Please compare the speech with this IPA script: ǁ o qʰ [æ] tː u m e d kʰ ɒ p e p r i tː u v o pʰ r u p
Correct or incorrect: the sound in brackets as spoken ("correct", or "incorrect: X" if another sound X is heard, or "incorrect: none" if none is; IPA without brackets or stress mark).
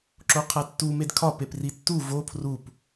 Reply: correct